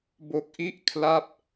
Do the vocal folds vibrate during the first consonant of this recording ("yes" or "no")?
yes